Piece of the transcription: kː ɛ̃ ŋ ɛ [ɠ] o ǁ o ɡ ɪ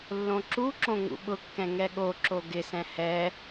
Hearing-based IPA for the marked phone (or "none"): ɠ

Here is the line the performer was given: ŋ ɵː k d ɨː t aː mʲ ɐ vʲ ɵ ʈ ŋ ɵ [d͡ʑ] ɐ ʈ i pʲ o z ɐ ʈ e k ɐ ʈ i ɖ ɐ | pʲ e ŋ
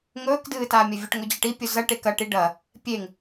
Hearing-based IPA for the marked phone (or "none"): d͡ʑ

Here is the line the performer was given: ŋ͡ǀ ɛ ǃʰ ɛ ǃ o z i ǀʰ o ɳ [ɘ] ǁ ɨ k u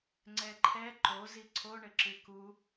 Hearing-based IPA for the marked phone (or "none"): ɘ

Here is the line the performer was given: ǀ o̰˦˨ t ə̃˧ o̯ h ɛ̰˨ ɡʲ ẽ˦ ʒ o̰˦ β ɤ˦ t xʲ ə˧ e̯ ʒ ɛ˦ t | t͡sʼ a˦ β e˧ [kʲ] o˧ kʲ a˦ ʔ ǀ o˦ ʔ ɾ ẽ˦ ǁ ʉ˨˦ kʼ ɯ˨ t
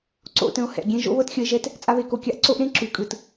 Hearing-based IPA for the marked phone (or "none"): k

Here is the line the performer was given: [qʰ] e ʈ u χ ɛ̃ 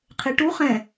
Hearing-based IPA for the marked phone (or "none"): qʰ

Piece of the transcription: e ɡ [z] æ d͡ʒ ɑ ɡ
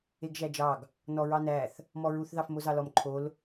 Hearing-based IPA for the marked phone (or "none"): ʒ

